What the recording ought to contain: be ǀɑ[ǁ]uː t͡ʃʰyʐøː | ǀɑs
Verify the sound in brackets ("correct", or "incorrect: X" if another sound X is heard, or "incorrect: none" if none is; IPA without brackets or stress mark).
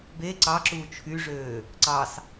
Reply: correct